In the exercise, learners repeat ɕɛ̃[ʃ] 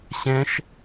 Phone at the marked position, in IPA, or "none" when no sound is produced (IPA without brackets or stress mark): ʃ